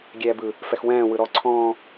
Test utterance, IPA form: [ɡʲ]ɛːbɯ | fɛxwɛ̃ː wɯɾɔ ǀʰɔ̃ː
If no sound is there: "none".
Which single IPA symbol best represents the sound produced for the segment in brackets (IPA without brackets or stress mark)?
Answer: ɡʲ